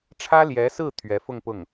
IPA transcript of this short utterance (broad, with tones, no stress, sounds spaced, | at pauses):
ʈ͡ʂʰ ä˥ l j ɛ˧˥ s ɹ̩˥˩ t̪ʰ ɥ ɛ˧˥ f ʊ˥˧ ŋ p ʊ˥˩ ŋ